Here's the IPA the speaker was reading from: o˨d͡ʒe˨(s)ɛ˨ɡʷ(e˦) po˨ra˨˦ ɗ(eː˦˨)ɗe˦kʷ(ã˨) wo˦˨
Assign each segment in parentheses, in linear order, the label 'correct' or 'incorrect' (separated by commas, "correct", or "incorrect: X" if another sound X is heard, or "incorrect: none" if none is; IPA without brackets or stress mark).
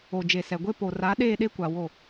correct, correct, correct, incorrect: a˨